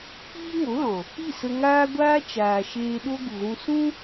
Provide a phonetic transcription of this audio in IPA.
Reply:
k͡piː˦ŋo˨˦lɔ̃˨ | i˦˨sə˧ŋaː˦ɡʷaː˦ t͡ʃaː˨ʃeː˧ɗo˦ ɡu˨ɣũ˧ sũ˦

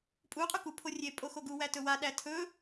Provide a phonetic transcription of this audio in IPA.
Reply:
pʼuqʼu ku pʰorʲepʼo xoɡuwæ tɵwaɗæ tʰɵ

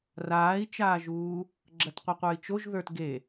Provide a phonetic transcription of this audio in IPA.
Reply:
raːi̯t͡ʃaːʒuː | ɡ͡ǁɐtqʷɐqʷə˞i̯t͡ʃoʒ ðə˞tɡe

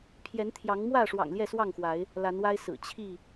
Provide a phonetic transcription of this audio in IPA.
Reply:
pʰjɛ˨˦nt̪ʰjɑ˨˦ŋmwä˥˨ʂwɑ̰˨˩ŋ ljɛ˥˨swɑ˥˨ŋxwa˨˦ɪ̯ | la˨˦nwa˦ɪ̯sɹ̩˨˩ t͡ɕʰi˥˨

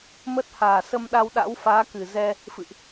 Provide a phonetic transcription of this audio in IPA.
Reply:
mə˦˥t̚haː˨˩ sə˧mɗa˧wɗa̰˧˥w faː˨˦ kɨ˨˩zɛ˧ | fɨ̰˧˨ʔ

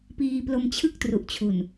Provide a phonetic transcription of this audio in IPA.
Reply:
piː˧ plo˧mt͡ɕʰɯ˥˩k̚tru˨˩ʔt͡ɕʰu˨˩n

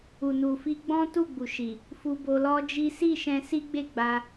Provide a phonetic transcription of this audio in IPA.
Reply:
u˨nu˨ fi˧ɡ͡bɔ̃˦ tu˦˨ɡ͡bu˨ʃi˨ | fu˧bo˧lɔ˦d͡ʒi˦ si˦˨ʃɛ̃˧si˦ ɡ͡be˦˨ɡ͡ba˧

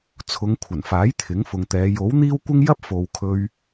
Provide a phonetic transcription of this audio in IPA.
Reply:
t͡sʰʊ˨˧ŋkʷʰɐ˨˩nfaː˨˥j t̪ʰɪ˨˥ŋfʊ˨ŋt̪ɛː˨˧ jo˨˥w n̪iː˥wkʷɪ˥ŋ jɐ˥p̚fo˨wkʰɵ˧ɥ

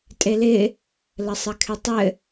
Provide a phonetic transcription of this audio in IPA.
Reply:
tʼelɪ | ləsˤɘkʰɪtˤɘ

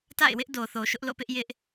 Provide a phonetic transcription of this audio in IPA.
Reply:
ta̰˦˨ɪ̯wɪ˦ʔ do˨θo˨ʃʊ˦ʔ lo̰˦˨pɪ˦ʔjɪ˦ʔ

